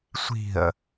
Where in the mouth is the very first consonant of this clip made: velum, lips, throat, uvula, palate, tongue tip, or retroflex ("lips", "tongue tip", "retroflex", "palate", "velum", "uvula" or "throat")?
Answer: tongue tip